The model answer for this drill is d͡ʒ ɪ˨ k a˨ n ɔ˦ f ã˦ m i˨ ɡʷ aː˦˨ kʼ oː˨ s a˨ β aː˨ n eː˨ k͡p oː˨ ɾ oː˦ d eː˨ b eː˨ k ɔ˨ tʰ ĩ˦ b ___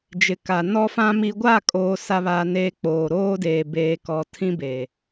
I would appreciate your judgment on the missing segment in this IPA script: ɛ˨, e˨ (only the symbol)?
e˨